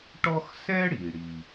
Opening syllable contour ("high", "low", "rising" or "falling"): high